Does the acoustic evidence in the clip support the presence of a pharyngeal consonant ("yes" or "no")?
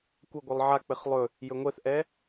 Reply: yes